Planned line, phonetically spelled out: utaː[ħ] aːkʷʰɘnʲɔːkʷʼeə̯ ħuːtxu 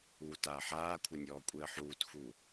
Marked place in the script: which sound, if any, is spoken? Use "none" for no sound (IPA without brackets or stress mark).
ħ